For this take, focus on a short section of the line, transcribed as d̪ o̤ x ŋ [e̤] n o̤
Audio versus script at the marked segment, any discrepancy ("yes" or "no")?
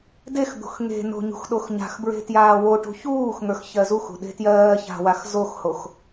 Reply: no